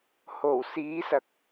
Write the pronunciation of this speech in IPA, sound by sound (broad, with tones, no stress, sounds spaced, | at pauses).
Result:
h o˨˩ w s iː˨˥ s ɐ˨ k̚